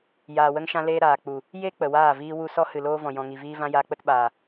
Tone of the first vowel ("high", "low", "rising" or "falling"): low